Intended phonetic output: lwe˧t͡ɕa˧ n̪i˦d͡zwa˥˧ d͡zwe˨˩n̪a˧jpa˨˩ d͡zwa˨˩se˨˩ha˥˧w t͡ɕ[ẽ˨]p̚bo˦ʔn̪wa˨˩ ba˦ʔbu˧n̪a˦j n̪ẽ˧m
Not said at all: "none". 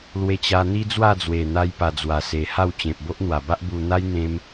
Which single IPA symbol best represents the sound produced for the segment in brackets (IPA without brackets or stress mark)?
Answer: ẽ˨